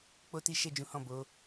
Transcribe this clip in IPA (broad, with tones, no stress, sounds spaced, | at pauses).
k͡p o˦ t i˦ ʃ ɛ˦˨ d͡ʒ ũ˨˦ h ɔ̃˦˨ b o˨˦